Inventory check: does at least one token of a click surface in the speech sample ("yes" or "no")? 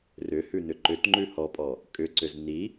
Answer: yes